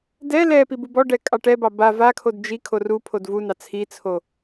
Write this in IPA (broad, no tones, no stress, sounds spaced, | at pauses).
d ɛ l ɛ p i b u b ɔ ɖ ɛ kʼ ɑ ʈ ɛ b ɑ b a v a kʰ o d d͡ʒ i kʰ o r u pʰ o d v u n ɑ t͡sʰ i t͡sʰ o